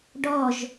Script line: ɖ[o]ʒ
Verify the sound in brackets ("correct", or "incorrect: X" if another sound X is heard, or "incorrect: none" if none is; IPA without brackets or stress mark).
incorrect: ɔ